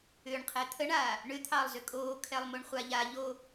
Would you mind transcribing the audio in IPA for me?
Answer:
ʏ ɳ qʰ ɛ t̪ʰ ə ɳ aː | ɳ ʏ t̪ʰ ɑ lˠ z ʏ kʼ oː kʰ ɛ lˠ m o ɳ χʷ a ʎ a ʎ o

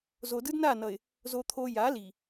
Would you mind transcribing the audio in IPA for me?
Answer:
z o˨ d ɯ˦ d n a˦˨ n ʌ˨ ɪ̯ | z o˨ t̪ʰ o˨ j a˨˦ l i˨

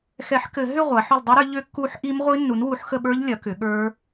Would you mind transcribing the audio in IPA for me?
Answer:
x ɛ˨˩˦ ħ k ɘ˨˩˦ ɦ ʏ˥˨ ʁʷ a˩˥ ħ ʏ˥˨ lˠ dˤ i˦˥ ɾ ə˞˩˥ ʎ ʏ˦˥ kː u˦˥ ħ ʔ i˦˥ m ʁʷ i˦˥ nː u˩˥ n w u˩˥ ħ x ə˥˨ ɓ ə˞˦˥ ʎ lʲ ɐ˩˥ k ʏ˩˥ ɠ ə˞˦˥

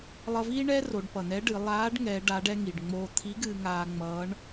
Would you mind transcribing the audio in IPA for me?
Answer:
lˠ ʌ˧ v iː˥ ɳ ɛː˥ r o˩˧ ɖ p ʌ˩ n ɛ˧˥ ɖ ɨ˩˧ lˠ aː˧˥ ɖ ŋ ɛ˧˥ ɖ a˧˥ ɖ ɛ˥ ŋ i˩ ɖ ŋ͡m oː˧ t̪ʰ i˧˥ ɡ ɨː˧ ŋ aː˧ ŋ͡m ʌː˧˥ ɳ

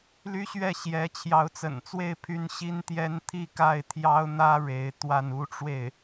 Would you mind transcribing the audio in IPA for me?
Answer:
l y˥ ɕ ɥ ɛ˥˩ ɕ j ɛ˧˥ t͡ɕʰ j ɑ˧˥ ʊ̯ t͡s ə̰˨˩ n t͡s w e˥˩ ɪ̯ pʰ y˥ n ɕ i˥ n t̪ j ɛ˥ n t̪ʰ i˥˧ k a˥˩ ɪ̯ t̪ʰ j ɑ˥ ʊ̯ n̪ ä˥ ɻ e˧˥ ɪ̯ t̪ w a˥˩ n u˥ ʈ͡ʂ w e˥˩ ɪ̯

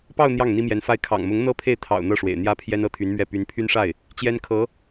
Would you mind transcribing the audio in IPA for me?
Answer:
p ɑ˥˧ ʊ̯ n̪ j ɑ˥˩ ŋ n̪ i˥ m j ɛ˧˥ n f a˥ ɪ̯ kʰ ɑ̰˨˩ ŋ m ʊ˧˥ ŋ n̪ ɤ˥ pʰ e˥˩ ɪ̯ t̪ʰ ɑ̰˨˩ ʊ̯ n̪ ɤ˥˩ ʂ w ḛ˨˩ ɪ̯ n̪ j ä˥ pʰ j ɛ˥ n ɤ˥˩ t̪ʰ y˧˥ n m ɥ ɛ˥˩ p y˧˥ n pʰ y˥ n ʂ a˥˩ ɪ̯ | t͡ɕ j ɛ˥ n kʰ ɤ˧˥

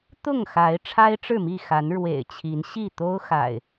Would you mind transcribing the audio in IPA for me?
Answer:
t̪ ʊ˥˨ ŋ x a˨˦ ɪ̯ ʈ͡ʂʰ a˦ ɪ̯ ʈ͡ʂ ɻ̩˥˨ m i˥˨ x a˨˦ n ɻ w ḛ˨˩ ɪ̯ t͡ɕʰ i˨˦ n ɕ i˥˨ t̪ o˦ ʊ̯ x a̰˨˩ ɪ̯

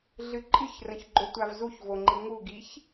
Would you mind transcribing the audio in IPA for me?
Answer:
ɮ ɨ ǃʼ ɨ ç r ə̃ ç ɡ͡ǃ o tʷ a v z u ç v o ŋ͡ǃ i ŋ u ɡ i ç

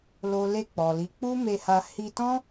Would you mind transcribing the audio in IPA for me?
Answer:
l o˨ l e˧ k͡p ɔ˨ l i˨˦ k͡p u˦ m e˧ h a˧ h i˧ t ɔ̃˦

